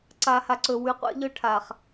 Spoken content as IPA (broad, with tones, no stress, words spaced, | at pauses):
ǀa˨ha˨ǀɵ˨ wʉ˨qʷḛ˦ʎɵ˦ ʈʰa˨χ